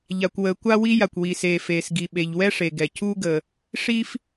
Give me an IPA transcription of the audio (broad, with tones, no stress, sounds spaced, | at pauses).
ʎ a˩ kʷ w əː˩ kʷ a˥ w i˥ j a˩ kʷ w i˩ s eː˩ f eː˩ s ɡ i˩ ɓ e˩ ʎ w ɛ˥ ʂ e˩ ɡ ɛ˩ cʰ uː˥ ɡ ə˩ | ʂ i˥ f